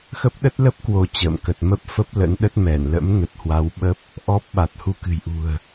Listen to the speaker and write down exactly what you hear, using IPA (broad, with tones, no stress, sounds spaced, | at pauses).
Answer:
x ə˦˥ p̚ ɗ ə˦˥ t̚ l ə˦˥ p̚ k w o˧ t͡ɕ ə̰ː˧˨ m k ə˨˩ t̚ m ə˦˥ p̚ f ə˦˥ p̚ l ə̰˧˥ n ɗ ə˦˥ t̚ m ɛ˧˩ n l ə̰˧˥ m n ə˨˩ t̚ h w a˨˦ w ɓ ə˦˥ p̚ | ʔ ɔ˦˥ p̚ ɓ a˨˩ t̚ h u˧ k ɨ̤˨˩ j ʔ ṳ˨˩ ə̯